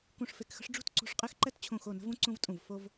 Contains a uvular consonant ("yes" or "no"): yes